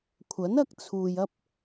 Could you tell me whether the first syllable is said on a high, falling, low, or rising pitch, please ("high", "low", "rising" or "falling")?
rising